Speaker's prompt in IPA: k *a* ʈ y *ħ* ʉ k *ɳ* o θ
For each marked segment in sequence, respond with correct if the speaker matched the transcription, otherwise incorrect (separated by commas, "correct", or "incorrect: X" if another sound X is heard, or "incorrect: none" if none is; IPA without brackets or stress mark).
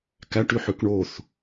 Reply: incorrect: æ, correct, correct